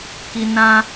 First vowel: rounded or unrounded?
unrounded